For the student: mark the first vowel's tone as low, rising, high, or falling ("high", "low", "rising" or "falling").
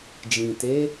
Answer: low